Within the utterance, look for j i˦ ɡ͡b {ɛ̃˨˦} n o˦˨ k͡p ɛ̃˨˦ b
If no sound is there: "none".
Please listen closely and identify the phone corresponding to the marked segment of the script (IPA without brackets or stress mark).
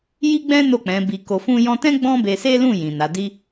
ɛ̃˦